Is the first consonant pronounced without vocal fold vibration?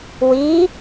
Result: no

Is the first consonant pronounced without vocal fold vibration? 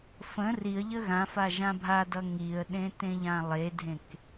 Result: yes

